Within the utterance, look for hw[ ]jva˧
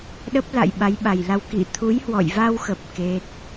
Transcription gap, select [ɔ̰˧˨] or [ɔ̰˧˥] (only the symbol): ɔ̰˧˨